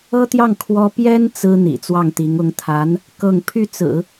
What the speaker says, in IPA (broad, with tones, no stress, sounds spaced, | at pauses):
ɤ˥ t̪ j ɑ˥˩ ŋ kʰ w ɔ˥ p j ɛ˥ n t͡s ɹ̩˥ n̪ ḭ˨˩ t͡s w ɑ˥˩ ŋ t̪ i˧˥ ŋ ʊ˧˥ ŋ t̪ʰ a˧˥ n | k ɤ˥˧ ŋ pʰ y˥˩ t͡s ɹ̩˨˩˦